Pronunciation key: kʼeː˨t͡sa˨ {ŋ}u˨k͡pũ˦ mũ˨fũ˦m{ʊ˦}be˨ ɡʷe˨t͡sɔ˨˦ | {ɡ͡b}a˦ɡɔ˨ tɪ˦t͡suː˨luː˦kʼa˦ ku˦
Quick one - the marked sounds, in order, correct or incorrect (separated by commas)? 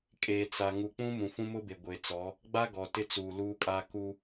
correct, correct, correct